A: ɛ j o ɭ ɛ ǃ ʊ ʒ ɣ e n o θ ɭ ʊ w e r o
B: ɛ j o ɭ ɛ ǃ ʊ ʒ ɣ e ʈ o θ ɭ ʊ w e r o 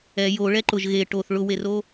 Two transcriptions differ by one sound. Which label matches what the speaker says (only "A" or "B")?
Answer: B